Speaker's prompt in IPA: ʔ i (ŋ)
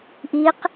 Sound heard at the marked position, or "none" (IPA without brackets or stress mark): q